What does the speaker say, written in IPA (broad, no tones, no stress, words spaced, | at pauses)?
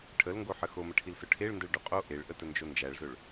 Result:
ʈʰəlŋɡoħə xoməʈʰilsʊ ʈʰeɭndəɭɖʊ qʼo ʔeɭʔətənd͡ʒo nd͡ʒæɭzɵɭ